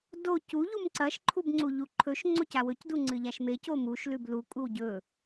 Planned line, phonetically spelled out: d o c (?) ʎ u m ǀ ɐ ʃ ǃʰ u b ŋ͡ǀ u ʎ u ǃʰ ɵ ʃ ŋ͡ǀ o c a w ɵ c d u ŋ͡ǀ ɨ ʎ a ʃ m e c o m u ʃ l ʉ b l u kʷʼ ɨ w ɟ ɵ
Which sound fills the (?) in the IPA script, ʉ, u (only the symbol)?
u